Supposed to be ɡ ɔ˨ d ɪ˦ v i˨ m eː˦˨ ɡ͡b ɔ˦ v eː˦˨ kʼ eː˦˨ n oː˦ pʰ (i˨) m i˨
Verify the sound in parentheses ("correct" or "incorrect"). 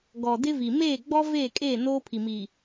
correct